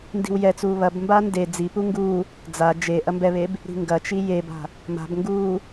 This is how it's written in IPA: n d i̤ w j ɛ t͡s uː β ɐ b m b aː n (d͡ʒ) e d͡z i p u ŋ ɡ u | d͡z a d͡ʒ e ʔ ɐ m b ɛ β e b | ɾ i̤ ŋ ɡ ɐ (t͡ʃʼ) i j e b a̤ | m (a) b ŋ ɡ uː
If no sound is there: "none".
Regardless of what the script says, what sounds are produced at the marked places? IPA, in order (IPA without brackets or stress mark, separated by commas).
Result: d, t͡ʃ, a̤